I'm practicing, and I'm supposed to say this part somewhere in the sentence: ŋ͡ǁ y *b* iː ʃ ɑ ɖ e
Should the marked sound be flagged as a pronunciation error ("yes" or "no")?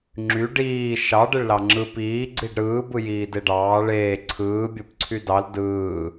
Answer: yes